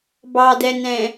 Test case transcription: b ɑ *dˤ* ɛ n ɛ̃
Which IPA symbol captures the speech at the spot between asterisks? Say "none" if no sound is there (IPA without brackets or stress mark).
d